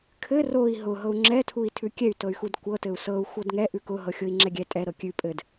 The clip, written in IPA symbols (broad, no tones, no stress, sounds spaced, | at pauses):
kʰ ɘ r o i̯ ɦ ʊ ɦ ɤ u̯ ŋ͡ǁ ɛ tʰ u i̯ tʰ ʉ kʲ ɛ y̯ t ɤ y̯ x u d kʷ ɤ t ɘ u̯ s ɤ u̯ xʷ ɤ d ŋ ɛ ʔ ʉ k ʊ ɦ ɤ xʲ o i̯ ŋ͡ǁ ɛ ɡʲ ɛ tʼ ɛ ɾ ɤ kʲ ʉ pʼ ɘ d